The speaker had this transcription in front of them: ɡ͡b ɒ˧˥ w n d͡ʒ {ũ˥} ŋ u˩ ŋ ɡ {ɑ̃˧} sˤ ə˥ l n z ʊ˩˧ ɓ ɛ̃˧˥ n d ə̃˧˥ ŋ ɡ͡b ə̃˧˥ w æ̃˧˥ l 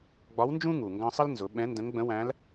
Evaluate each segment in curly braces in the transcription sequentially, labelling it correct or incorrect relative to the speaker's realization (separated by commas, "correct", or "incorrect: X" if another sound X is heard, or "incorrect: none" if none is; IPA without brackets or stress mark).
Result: correct, correct